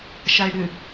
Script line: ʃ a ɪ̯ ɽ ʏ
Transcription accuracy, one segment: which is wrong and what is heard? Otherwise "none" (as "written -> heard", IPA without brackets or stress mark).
none